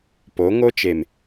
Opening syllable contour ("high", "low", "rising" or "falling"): rising